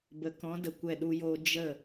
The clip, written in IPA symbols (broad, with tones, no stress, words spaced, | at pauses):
bə˨kɔ̃˨˦ də˨kʷɛ˦˨ɗu˦joː˦ d͡ʒə˦˨